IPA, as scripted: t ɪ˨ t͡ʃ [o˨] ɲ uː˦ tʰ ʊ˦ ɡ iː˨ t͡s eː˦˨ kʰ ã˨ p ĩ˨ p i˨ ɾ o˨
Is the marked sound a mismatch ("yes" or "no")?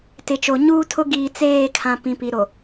no